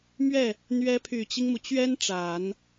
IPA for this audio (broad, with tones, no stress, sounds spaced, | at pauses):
m ɥ ɛ˥˩ | n̪ ɥ ɛ˧˥ pʰ y˨˩ t͡ɕ i˦ ŋ m u˩ t͡ɕ ɥ ɛ˥ n ʈ͡ʂ a˨˩˦ n